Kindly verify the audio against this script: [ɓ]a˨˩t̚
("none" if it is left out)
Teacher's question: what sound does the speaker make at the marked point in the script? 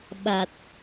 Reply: ɓ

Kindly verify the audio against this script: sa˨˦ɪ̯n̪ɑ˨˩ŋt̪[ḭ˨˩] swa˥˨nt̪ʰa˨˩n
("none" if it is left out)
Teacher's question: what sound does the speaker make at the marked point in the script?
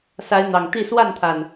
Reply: i˥˨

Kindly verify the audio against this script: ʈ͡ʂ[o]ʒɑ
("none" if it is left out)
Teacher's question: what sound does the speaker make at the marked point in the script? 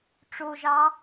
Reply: o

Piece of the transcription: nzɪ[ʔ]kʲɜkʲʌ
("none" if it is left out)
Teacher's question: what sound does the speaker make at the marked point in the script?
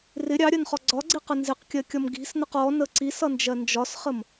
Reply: q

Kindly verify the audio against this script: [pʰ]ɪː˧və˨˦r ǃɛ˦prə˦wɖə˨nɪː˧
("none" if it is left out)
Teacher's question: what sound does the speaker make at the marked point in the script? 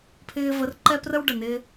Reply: pʰ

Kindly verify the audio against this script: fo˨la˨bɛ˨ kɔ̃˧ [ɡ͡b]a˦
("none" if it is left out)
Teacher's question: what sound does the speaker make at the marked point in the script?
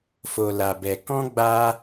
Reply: ɡ͡b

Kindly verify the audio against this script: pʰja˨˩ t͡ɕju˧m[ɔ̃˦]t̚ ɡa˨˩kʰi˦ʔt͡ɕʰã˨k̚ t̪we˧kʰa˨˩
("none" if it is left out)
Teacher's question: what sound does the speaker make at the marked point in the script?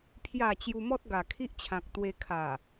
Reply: ɔ˦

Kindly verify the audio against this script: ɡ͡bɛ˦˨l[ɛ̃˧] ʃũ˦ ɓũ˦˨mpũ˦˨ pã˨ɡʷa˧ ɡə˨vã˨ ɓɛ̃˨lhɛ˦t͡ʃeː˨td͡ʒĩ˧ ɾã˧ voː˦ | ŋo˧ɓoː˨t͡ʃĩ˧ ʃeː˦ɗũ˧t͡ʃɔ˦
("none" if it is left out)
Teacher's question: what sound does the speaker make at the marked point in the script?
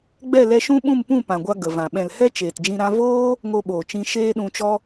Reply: ɛ˧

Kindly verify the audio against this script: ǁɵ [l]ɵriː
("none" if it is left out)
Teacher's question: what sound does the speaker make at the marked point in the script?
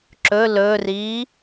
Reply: l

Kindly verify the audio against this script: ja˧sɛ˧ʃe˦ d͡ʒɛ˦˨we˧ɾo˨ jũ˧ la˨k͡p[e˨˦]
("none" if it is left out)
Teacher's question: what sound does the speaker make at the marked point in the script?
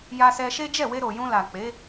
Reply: e˨˦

